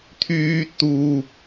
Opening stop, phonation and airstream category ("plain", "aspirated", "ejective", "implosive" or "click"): aspirated